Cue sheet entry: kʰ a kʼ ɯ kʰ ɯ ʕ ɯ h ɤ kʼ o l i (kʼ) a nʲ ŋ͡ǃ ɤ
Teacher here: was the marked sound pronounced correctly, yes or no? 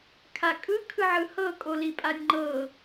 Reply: no